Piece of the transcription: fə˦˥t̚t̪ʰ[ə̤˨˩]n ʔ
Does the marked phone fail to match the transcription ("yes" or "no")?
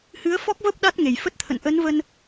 yes